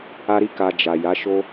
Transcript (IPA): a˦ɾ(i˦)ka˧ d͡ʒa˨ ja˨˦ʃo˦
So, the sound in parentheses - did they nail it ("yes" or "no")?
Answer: yes